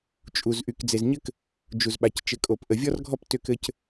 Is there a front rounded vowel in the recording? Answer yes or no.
yes